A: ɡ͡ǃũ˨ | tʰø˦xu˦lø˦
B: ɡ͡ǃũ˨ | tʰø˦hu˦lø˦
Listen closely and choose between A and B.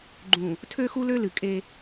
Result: A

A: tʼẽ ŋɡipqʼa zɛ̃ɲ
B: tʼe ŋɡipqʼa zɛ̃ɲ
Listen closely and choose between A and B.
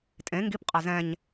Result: A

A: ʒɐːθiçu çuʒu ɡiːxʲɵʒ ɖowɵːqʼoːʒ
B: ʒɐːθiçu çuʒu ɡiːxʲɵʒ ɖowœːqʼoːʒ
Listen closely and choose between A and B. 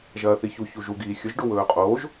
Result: A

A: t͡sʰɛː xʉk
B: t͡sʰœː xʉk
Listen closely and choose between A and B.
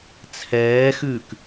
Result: A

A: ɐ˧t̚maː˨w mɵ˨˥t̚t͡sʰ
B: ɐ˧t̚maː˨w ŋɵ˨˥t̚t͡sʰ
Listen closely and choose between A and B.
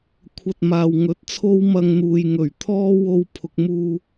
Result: B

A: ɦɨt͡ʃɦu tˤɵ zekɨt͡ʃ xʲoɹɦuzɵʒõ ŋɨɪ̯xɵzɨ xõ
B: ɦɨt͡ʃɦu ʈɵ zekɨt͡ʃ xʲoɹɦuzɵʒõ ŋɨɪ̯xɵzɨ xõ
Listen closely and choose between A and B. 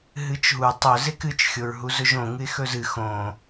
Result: A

